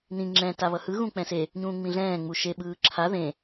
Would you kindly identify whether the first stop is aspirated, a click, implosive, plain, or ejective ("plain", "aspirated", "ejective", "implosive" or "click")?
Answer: click